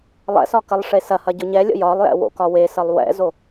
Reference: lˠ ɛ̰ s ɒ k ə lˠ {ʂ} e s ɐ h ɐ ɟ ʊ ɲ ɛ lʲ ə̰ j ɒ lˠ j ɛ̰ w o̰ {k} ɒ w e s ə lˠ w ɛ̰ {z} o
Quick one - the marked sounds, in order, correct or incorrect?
correct, correct, correct

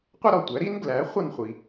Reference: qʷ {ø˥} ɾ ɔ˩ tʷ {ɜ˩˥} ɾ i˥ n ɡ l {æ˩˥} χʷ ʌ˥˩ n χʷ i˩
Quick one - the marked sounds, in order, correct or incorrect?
incorrect: ə˥, incorrect: æ˩˥, correct

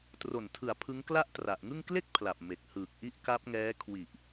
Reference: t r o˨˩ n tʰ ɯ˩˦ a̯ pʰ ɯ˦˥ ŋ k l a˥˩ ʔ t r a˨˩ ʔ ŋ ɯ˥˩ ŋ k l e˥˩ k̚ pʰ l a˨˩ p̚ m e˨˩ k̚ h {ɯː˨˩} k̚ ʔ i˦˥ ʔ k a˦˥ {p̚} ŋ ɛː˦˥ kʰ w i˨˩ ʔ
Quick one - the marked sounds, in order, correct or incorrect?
correct, correct

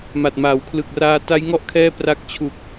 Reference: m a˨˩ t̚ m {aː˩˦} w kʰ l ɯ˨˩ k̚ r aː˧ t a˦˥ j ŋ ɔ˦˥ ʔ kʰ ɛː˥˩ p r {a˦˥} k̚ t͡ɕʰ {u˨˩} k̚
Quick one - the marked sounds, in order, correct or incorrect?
correct, correct, correct

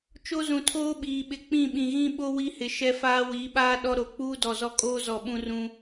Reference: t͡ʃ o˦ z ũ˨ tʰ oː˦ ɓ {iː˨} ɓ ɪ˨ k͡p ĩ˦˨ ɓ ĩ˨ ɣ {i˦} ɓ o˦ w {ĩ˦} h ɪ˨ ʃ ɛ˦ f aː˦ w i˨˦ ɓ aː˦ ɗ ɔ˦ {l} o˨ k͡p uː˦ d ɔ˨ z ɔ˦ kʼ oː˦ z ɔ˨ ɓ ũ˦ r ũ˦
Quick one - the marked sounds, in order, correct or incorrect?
correct, incorrect: ĩ˦, incorrect: i˦, incorrect: ɾ

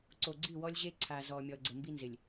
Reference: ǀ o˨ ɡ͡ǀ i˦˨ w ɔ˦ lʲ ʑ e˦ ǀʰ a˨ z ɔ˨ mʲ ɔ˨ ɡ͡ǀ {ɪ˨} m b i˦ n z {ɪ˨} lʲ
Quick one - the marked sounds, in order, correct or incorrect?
incorrect: ə˨, correct

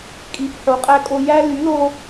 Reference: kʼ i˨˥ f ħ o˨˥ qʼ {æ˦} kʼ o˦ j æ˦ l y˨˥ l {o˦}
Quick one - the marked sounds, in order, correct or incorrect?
correct, correct

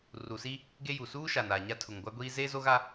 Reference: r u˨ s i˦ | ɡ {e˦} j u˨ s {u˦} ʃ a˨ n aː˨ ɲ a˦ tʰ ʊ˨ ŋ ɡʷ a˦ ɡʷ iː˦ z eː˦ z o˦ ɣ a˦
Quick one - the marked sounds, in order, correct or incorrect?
correct, incorrect: uː˦

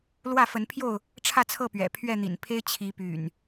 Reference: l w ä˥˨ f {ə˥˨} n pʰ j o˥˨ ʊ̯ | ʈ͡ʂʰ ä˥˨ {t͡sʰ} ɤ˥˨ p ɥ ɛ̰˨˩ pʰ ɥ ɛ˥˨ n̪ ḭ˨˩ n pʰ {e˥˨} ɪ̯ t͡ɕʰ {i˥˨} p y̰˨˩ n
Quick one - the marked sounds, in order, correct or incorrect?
incorrect: ə˨˦, correct, incorrect: e˦, incorrect: i˨˦

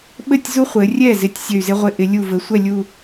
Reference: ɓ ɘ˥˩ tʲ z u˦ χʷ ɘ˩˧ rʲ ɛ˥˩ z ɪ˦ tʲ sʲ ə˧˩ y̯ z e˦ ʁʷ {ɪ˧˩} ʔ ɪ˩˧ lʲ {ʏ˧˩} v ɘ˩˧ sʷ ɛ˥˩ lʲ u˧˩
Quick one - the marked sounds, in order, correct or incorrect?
correct, incorrect: u˧˩

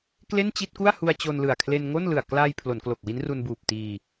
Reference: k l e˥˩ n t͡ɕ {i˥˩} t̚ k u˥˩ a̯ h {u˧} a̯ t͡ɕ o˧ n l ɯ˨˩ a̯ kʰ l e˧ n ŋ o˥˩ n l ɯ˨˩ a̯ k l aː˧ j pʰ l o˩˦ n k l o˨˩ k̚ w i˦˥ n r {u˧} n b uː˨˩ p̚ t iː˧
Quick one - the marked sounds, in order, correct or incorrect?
correct, correct, correct

